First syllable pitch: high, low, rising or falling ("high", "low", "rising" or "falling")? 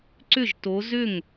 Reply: falling